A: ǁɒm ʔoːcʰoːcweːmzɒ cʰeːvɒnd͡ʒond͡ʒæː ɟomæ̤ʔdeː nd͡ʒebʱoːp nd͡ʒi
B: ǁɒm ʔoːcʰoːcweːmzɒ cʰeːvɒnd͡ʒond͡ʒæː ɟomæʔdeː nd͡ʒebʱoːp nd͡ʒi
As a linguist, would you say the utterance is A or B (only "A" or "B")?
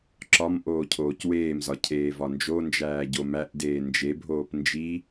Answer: B